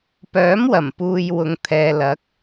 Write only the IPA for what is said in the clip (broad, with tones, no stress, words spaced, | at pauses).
pœː˨˥mwɐ˨˩m puː˧j wʊ˨ŋt̪ʰɛː˨ lɐ˨˥k̚